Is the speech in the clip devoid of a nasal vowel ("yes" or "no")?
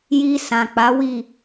no